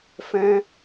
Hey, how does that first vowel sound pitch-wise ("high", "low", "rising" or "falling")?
high